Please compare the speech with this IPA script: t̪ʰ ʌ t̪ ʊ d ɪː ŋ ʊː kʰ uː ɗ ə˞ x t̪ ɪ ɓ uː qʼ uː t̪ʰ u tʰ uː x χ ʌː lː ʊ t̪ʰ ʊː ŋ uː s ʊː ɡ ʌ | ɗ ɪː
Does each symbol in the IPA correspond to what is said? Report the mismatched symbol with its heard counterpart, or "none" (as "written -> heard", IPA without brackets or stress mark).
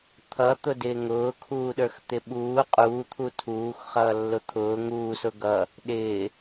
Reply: none